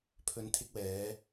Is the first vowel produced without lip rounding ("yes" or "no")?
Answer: no